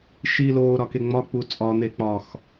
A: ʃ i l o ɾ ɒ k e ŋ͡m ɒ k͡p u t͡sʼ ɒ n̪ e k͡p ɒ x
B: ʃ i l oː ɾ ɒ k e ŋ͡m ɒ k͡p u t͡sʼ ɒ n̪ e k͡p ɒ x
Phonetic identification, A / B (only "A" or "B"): B